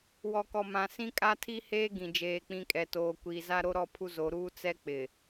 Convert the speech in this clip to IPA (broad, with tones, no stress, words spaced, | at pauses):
wɔ˨kɔ˨ mã˨ sĩ˦kʼa˦tʰi˦heː˦ ɡĩ˨d͡ʒeː˨k͡pĩ˦ kʼɛ˨toː˨kʷiː˨ za˦ɾo˦ ɾɔ˦pʰu˦zo˨˦ ɾuː˦t͡sɛ˦ k͡pɪ˨